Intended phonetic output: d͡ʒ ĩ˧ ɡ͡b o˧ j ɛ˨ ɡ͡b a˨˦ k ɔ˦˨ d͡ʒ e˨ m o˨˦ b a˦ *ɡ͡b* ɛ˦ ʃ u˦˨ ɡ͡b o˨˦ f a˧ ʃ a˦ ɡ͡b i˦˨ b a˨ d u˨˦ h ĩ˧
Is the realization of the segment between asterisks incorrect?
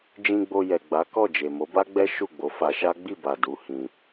no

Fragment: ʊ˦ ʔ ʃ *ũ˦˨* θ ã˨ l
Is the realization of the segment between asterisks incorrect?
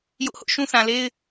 yes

